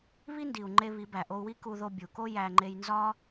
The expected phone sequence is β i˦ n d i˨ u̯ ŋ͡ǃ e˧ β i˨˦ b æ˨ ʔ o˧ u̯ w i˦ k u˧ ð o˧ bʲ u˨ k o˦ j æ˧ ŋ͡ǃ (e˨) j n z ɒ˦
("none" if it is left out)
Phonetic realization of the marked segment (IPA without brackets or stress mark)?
e˦